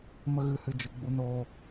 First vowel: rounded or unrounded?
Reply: unrounded